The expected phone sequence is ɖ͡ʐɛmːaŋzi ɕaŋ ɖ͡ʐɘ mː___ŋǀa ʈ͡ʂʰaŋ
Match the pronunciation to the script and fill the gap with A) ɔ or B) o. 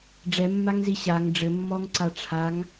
A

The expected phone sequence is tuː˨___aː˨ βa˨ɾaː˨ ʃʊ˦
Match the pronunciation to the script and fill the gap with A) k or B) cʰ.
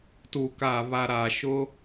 A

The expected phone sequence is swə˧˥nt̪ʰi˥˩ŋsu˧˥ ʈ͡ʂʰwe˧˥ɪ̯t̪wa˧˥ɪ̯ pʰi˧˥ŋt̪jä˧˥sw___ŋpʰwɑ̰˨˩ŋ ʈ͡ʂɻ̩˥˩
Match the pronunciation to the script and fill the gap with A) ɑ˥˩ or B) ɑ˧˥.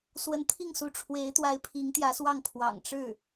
A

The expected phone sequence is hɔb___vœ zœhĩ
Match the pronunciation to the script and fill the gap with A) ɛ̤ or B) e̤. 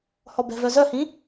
A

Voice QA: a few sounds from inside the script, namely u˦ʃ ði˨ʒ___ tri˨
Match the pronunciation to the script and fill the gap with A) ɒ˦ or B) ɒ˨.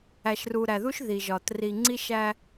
B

